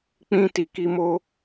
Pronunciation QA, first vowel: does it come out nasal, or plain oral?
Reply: nasal